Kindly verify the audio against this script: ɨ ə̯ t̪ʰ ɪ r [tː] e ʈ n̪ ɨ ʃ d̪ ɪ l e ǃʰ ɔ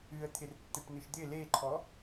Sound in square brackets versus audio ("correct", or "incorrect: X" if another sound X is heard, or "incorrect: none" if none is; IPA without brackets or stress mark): correct